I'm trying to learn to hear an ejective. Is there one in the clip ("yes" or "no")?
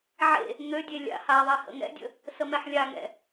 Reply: no